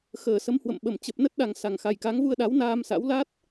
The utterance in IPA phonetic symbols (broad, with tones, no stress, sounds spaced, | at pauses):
x əː˧˩ s ə˨˦ m h w ə̰˧˨ m ɓ ə˧˩ m t͡ɕ ə˨˩ p̚ n ə˦˥ t̚ ɗ a˨˩ ŋ s a˨˩ ŋ x a˨˩ j k a˨˦ ŋ v u˧ ə̯ ɗ a˨˦ w n aː˧ m s a̰˧˥ w l a˦˥ t̚